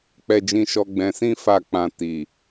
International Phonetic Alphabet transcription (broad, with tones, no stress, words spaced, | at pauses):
k͡pɛ˧d͡ʒĩ˧ʃɔ˧ ɡ͡bɛ̃˧sĩ˦ fa˦˨k͡pã˧ ti˨